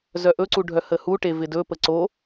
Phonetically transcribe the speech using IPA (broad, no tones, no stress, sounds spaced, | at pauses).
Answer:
z œ ʔ ɵ ǀ u ɖʱ œ h ə h u ʈ e v ɪ d ɵ p ə ǀ o